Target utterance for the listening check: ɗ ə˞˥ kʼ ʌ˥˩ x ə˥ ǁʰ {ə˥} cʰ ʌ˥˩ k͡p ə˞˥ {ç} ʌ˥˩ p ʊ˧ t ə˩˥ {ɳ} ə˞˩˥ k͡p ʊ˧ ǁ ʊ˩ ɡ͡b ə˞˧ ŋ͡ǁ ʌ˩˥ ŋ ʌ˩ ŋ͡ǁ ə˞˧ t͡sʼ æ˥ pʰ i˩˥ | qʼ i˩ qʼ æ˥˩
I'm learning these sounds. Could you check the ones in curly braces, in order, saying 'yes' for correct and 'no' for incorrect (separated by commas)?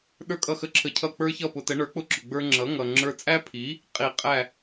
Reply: no, yes, yes